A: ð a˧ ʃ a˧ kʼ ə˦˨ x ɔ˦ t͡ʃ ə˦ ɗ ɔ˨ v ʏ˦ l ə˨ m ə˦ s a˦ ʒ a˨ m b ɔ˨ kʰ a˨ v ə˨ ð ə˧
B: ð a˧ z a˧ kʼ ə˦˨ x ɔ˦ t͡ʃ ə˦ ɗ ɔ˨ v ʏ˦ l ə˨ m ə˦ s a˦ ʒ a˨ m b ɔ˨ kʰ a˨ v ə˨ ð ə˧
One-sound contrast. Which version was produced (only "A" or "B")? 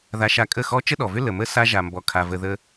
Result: A